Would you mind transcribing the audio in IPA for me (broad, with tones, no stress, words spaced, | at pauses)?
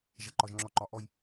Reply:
ʒɐ˦ǃɒ˦ʒ ŋ͡ǁɔ˦ǃɒ˦ ʔɔ˦j